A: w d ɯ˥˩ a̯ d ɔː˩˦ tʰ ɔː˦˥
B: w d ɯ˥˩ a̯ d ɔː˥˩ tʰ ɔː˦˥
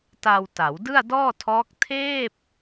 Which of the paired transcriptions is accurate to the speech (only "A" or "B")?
B